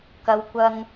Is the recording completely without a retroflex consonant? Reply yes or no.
yes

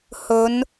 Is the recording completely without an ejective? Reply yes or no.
yes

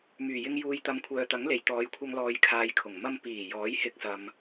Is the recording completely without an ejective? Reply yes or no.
yes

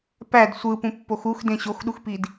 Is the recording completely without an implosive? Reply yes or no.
no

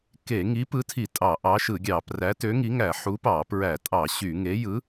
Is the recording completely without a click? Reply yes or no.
yes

